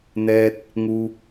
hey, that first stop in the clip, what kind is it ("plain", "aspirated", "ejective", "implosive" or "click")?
plain